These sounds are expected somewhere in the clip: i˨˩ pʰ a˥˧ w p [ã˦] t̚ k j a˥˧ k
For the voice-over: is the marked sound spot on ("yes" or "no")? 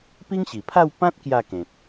yes